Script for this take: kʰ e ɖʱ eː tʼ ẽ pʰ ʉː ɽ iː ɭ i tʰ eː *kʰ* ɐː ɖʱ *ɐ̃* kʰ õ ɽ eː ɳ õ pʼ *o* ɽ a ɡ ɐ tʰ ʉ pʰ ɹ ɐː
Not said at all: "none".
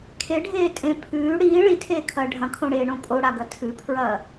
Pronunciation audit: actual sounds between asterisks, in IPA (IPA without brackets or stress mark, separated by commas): kʰ, ɐ̃, o